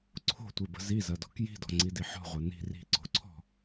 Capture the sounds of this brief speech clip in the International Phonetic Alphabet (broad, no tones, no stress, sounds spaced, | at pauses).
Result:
ǀʰ o̤ tʷ i b ə̤ z i z ɐ d ɔ̤ k j i̤ d ɔ̤ ŋ͡ǀ i d i ħ ɔ̤ ʁʷ ɐ n i̤ r i̤ ǀ o̤ ǀʰ ɔ̤